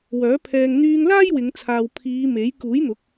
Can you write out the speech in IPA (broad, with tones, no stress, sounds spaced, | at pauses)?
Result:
w œː˨˥ pʰ ɛː˧ ŋ n̪ yː˧ ŋ l aː˥ j w ɪ˨˧ ŋ t͡sʰ aː˨ w pʰ iː˨˧ m e˨˥ j k uː˨˥ j n̪ ʊ˨˥ k̚